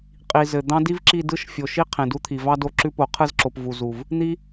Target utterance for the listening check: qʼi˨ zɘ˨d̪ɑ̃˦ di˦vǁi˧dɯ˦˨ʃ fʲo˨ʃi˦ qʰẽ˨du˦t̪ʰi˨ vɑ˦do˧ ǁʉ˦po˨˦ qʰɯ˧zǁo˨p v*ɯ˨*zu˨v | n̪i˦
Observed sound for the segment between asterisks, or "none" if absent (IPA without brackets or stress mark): u˨